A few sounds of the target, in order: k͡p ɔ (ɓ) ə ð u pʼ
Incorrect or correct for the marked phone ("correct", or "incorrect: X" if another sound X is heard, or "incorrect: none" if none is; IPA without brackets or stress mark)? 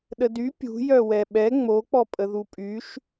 incorrect: pʼ